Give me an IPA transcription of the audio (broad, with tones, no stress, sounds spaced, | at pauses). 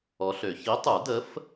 ɔ˨˥ ɬ ø˨˩˦ ç i˨˥ tˤ u˨˩˦ d ə˨˥ f